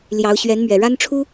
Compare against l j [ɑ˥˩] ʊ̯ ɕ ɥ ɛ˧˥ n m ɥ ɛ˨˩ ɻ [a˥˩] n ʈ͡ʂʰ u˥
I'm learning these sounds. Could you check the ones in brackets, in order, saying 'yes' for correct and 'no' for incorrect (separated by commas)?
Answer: no, no